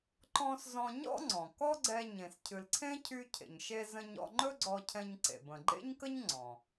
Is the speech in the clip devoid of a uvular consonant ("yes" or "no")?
yes